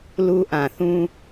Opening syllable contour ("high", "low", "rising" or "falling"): high